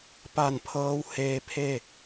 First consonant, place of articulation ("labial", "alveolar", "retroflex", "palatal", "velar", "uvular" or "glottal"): labial